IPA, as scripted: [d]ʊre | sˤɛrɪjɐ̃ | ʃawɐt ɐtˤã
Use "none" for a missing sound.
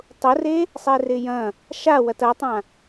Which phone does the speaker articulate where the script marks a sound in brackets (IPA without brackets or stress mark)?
tˤ